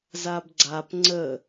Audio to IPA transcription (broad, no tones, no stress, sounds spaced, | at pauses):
z a b ɡ͡ǀ a p ŋ͡ǀ ə